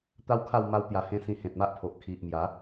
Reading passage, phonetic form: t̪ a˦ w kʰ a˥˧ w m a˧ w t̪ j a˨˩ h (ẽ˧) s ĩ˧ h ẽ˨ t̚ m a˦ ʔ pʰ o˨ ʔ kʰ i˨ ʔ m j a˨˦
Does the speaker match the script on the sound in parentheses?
yes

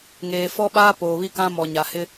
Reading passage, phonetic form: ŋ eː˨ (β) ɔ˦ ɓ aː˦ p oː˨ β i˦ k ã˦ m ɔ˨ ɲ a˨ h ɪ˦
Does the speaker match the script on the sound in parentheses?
no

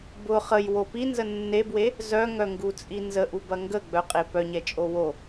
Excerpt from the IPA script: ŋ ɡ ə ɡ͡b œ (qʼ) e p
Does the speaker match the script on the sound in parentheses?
yes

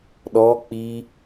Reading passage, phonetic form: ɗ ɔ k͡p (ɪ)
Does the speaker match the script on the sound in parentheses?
no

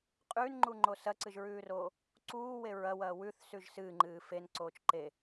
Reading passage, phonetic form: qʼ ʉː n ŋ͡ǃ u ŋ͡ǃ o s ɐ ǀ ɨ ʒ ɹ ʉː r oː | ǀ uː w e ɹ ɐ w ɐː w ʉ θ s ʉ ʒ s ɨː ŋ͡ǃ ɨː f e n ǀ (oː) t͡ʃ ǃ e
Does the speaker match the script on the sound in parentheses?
yes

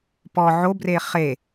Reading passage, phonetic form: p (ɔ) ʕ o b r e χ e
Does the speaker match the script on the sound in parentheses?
yes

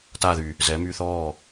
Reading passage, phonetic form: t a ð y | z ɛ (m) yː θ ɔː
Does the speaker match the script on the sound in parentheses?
yes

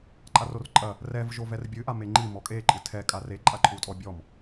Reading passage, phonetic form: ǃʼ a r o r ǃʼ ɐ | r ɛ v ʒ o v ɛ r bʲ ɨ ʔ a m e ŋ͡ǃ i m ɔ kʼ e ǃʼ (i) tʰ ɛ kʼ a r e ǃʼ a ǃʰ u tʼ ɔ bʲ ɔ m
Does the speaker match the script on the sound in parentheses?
no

